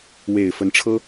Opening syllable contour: low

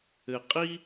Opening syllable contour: low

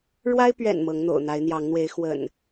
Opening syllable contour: high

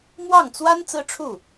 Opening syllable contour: falling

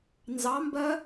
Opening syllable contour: rising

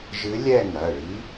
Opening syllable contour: rising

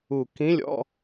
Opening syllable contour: low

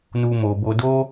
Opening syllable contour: high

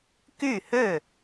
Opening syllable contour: falling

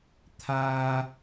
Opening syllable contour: high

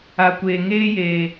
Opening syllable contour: low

